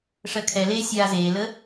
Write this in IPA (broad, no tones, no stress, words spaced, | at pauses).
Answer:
ʂɜkʰɛleː sʲaːzeːlə